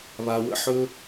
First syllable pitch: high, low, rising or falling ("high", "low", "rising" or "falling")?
low